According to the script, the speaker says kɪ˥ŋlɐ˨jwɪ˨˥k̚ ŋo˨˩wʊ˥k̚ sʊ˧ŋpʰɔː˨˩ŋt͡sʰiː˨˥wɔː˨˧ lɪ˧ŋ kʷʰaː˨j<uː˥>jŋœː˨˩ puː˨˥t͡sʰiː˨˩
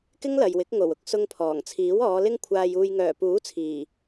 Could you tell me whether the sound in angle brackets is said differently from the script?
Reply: yes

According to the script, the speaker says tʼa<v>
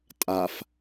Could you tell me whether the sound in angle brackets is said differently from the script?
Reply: yes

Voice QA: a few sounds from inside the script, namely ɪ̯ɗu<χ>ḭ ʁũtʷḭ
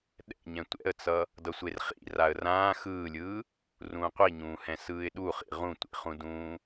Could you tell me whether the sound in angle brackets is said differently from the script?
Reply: no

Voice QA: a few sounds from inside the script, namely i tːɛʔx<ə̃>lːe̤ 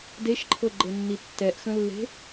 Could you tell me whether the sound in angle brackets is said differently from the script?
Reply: no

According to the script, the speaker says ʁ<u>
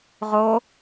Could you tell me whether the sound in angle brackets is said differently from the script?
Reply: yes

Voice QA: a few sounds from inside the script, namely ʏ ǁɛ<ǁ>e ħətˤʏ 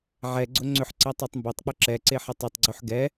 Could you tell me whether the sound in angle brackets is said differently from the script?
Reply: yes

